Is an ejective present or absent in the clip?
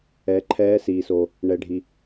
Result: absent